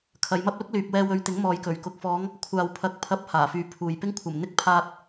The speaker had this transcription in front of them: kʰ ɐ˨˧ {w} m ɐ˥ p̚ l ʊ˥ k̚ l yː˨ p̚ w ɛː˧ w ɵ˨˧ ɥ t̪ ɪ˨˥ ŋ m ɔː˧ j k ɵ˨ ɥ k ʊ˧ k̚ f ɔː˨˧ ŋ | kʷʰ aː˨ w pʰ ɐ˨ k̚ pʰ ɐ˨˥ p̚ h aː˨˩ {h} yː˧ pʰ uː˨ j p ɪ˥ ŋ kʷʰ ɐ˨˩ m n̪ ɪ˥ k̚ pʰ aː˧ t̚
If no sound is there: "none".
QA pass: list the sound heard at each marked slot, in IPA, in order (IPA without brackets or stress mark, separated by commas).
j, f